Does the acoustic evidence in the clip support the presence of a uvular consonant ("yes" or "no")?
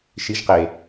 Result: yes